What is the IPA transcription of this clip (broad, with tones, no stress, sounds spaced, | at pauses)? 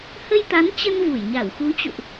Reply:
h ə˧ j t̪ a˨˦ n t͡ɕ ə˧ n v u˧˩ j ɲ a˧˩ w x u˨˦ t͡ɕ ṵ˧˨ ʔ